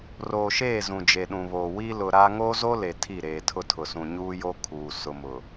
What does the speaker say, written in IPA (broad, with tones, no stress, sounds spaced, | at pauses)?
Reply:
r oː˨ ʃ eː˦˨ z ũ˨ d͡ʒ e˨ ɗ ũ˨ β oː˨ w i˦ l ʊ˨ ɾ a˦ ŋ oː˦ z o˦ l e˨ tʰ i˦˨ ɾ eː˨ tʰ ʊ˦ tʰ ʊ˨ s ũ˨ ɲ uː˦ j o˦ kʰ uː˨ s ʊ˨ m ʊ˨